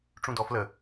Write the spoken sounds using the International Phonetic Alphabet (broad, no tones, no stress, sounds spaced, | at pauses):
ʈ͡ʂ ũ d ɔ f l ə